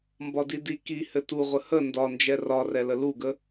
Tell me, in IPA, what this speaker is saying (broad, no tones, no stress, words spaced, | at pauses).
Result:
mbɒdidi ki hɘtuʁʷə hə ndɒnd͡ʒɛ rɒrɛlə luɡə